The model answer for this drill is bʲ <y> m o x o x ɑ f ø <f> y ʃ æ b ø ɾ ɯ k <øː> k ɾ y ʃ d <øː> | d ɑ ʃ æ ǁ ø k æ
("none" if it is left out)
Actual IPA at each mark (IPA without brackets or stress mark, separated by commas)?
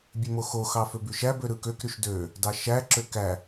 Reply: ø, b, ø, ø